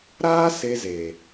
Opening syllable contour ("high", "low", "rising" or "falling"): high